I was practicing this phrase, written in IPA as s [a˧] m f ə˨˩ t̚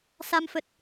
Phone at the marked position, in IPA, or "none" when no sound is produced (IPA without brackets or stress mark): a˧